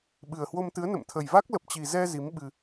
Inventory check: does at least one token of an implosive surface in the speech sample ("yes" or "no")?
yes